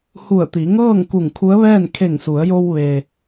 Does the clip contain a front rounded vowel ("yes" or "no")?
no